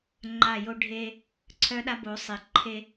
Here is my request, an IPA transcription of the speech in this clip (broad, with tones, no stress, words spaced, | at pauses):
ŋ͡ǃa˦˨jo˦ ɖʱe˦ | ǀʰœ˦ɗa˦bo˨˦sˤi˨ ǃʰe˦